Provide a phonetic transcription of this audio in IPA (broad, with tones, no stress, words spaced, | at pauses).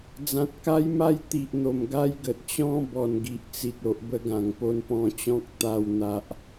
d͡zã˨t̚ka˦jma˦j t̪i˨ʔn̪o˨˩m ɡa˦j ɡə˨t̚t͡ɕɔ̃˦ bɔ˨˩nɡi˨ʔ t͡si˨t̚ o˨ʔ bə˦ɡã˨˩ŋ po˧n pɔ̃˧t͡ɕɔ̃˦k̚ t̪a˧w n̪a˨ʔ